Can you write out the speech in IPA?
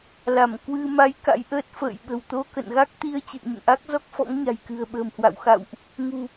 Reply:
l a˧˩ m k w ɨ˧ m a˨˦ j k a̰˧˥ j ʔ əː˦˥ t̚ f ə̰ː˧˨ j ɓ ə̤˨˩ w t̪ o˧ k ə̰˧˨ n ɣ a˦˥ k̚ t̪ i˧ ə̯ t͡ɕ ɨ̰˧˨ ə̯ ɲ ə̰˧˨ n ʔ a˦˥ k̚ z ɔ˦˥ k̚ f ɔ̰˧˥ ŋ ɲ a̤˨˩ j k ɨ̤˨˩ ə̯ ɓ ə̤ː˨˩ m h w a̰˧˨ w x a̰˧˨ w ʔ | ŋ ṳ˨˩

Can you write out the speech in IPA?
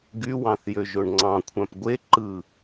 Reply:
ɡ y w ɑ̃ θ j ø ʒ o ɳ ŋ͡ǀ ɑ̃ kʷʰ æ̃ p ɡʷ e ǃ ɯ

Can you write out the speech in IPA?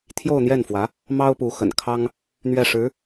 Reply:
t̪ʰ j o˥˧ ʊ̯ n̪ j ɛ˥˩ n f w ä˧˥ | m ɑ˥ ʊ̯ p u˧˥ x ə̰˨˩ n kʰ ɑ˥ ŋ | n̪ ɥ ɛ˥˩ ʂ ɻ̩˧˥

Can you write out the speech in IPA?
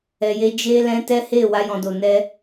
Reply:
ɛ˨ j e˧ d͡ʒ e˧ l ɛ̃˧ t ɛ˦ h e˦˨ w a˧ j ɔ̃˨ d o˨ n ɛ˧

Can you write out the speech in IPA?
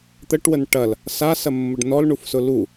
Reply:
t̪ ə ʈ w ə n ʈ ɐ l | s a s ɐ mː ʊ ɖ n ɔ l ɳ u f s ʊ l u

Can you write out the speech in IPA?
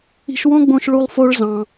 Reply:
i̤˧ ʃ w õ˥ ɡ͡b õ˧ ʃ ɭ u˧ lˠ f o˧ ɭ z ɑ̃˩

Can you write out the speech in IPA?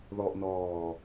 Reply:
ð ɔ ʔ n ɔː

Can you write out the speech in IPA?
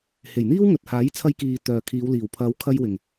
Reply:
h e˨˩ j n̪ iː˥ w ŋ ɵ˨ t̚ h aː˨˥ j t͡sʰ ɐ˧ j k iː˨ t̪ œː˨ kʰ iː˨˧ w l iː˨˩ w pʰ ɐ˨˧ w kʰ ɐ˧ j w ɪ˨˩ ŋ

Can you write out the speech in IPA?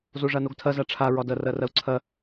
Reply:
z o ʐ a n o ɡ tʰ ɐ z a ʈ͡ʂʰ a ɹ ɒ d ɐ r ɐ r ɐ u̯ ǀʰ ɐ

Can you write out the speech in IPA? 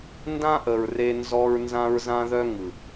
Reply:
n d ã˦ ʔ ə˨ ɹ r e˦ n z ɔ˦ ɹ n z ã˦ ɹ z ã˦ ð œ˦ ŋ ɯ˨

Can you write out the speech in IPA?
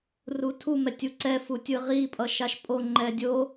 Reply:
r u tʰ u m ɛ tʲ u ǀ ɛ f u tʲ ɯ ʁ i pʼ ʌ ʃ a ʃ pʼ o ŋ͡ǃ ɛ dʲ o

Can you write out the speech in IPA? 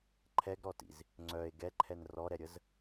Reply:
ǃʰ ɛ ɡ ɾ ɔ t ḭ z | ŋ͡ǀ œ e̯ ɡ ɛ ǃʰ ɛ n r ɔ ɾ ɛ ɾʲ ə z

